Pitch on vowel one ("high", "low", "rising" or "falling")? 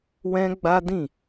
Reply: high